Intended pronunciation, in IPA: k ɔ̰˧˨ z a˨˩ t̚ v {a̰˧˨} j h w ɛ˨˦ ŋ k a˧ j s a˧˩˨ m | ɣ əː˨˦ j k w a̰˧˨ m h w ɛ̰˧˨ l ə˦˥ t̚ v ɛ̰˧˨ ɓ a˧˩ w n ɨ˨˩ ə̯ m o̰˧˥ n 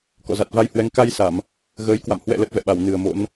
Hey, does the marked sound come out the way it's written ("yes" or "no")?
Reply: no